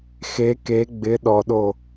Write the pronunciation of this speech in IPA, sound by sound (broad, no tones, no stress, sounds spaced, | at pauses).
x e k e ɡ͡b ɪ ɗ ɔ ɗ o